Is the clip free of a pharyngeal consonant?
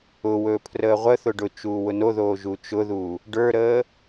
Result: yes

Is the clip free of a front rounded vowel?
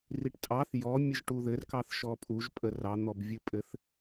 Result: yes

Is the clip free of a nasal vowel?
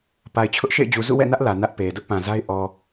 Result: no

